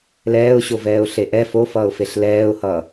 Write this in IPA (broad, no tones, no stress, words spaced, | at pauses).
lɛːʊ̯ɕovɛːʊ̯ ɬeʔɛ fofʌːʊ̯feɬ lɛːʊ̯hʌː